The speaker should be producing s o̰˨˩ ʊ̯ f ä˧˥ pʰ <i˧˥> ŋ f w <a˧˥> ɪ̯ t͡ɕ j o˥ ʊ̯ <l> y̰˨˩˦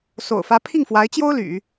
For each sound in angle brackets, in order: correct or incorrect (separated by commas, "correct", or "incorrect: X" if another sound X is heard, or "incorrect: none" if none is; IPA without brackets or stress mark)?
incorrect: i˥˩, correct, correct